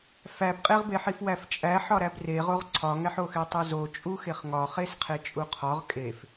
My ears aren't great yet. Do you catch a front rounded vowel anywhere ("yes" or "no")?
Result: no